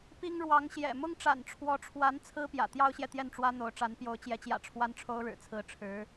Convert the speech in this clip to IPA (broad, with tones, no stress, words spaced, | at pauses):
pi˥ŋɻwɑ˧˥ŋɕjɛ̰˨˩ mʊ˥ŋʈ͡ʂa̰˨˩nʈ͡ʂʰwɔ˧˥ʈ͡ʂʰwa˧˥n t͡sʰɹ̩˥pjä̰˨˩ t̪jɑ˥ʊ̯ɕjɛ˨ t̪jɛ˥˩nʈ͡ʂwä˥n̪o˧˥ʊ̯ʈ͡ʂa˧˥n pjo˧˥ʊ̯t͡ɕjɛ˧˥t͡ɕjä̰˨˩ ʈ͡ʂʰwa˥nʈ͡ʂʰo˥ʊ̯ɻɻ̩˨˩t͡sʰɹ̩˧˥ ʈ͡ʂʰɻ̩˧˥